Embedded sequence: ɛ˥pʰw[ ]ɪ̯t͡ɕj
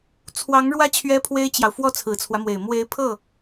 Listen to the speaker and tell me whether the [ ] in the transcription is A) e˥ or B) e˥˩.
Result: A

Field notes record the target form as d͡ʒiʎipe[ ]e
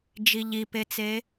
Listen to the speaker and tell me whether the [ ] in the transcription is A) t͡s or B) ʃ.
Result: A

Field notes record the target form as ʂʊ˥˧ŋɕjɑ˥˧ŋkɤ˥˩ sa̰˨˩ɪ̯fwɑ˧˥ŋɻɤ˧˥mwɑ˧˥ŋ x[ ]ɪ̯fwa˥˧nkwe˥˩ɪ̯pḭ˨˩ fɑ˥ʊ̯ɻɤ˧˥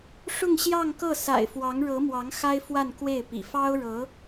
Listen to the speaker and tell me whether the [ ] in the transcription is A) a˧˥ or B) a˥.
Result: B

